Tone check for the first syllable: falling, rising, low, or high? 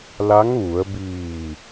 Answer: rising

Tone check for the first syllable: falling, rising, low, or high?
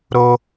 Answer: high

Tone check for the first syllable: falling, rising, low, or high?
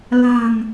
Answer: low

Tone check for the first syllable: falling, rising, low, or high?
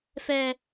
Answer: high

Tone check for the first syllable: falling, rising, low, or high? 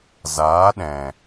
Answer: rising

